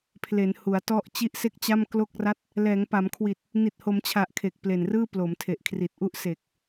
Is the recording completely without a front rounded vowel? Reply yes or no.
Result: yes